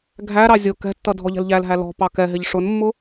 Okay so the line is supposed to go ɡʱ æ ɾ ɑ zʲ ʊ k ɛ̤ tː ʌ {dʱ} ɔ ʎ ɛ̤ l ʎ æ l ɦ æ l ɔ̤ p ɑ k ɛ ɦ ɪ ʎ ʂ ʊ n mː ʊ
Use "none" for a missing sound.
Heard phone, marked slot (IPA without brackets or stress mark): dʱ